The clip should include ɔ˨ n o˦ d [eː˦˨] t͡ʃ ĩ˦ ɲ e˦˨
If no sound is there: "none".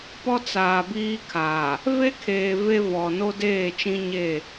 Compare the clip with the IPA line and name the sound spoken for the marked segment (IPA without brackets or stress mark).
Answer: eː˦˨